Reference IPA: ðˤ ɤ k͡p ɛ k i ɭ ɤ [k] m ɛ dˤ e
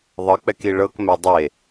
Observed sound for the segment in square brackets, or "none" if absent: k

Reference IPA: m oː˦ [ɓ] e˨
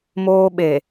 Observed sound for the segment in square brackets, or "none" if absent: ɓ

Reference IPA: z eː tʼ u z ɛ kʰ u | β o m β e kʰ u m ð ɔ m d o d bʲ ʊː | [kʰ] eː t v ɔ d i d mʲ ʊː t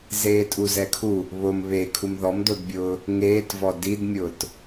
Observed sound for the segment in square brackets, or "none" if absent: ŋ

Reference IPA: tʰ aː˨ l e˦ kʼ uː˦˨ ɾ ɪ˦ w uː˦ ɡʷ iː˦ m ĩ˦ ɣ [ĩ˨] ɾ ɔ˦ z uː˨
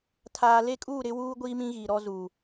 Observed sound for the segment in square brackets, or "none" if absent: i˨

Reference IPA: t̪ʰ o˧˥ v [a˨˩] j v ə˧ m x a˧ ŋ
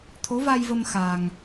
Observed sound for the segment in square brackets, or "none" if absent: a˧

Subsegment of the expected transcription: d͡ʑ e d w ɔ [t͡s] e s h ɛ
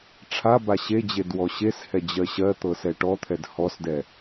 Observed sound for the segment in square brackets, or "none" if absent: ɕ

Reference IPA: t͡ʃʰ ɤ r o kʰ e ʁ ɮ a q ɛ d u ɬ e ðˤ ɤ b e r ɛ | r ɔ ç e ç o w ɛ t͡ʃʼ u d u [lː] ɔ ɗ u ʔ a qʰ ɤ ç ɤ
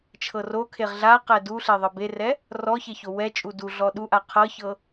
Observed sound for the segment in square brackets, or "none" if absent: ɮ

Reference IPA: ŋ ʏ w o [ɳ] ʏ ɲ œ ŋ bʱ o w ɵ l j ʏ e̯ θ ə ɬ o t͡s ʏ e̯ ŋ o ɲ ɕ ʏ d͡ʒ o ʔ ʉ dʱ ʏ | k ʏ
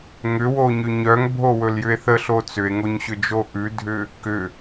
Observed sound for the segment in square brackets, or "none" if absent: ɲ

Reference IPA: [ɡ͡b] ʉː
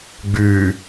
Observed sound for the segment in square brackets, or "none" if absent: ɡ͡b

